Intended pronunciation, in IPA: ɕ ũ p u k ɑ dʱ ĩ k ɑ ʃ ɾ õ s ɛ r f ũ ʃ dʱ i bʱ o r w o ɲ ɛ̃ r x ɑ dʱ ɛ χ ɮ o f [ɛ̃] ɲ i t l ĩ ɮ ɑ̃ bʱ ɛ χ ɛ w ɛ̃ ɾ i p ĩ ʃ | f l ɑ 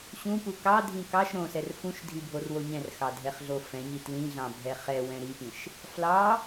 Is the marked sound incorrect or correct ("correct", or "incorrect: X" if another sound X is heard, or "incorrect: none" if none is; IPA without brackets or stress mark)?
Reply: correct